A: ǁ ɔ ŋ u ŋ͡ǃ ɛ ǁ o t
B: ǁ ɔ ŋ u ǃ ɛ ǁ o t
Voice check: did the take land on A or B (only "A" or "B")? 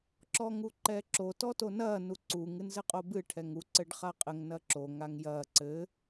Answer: B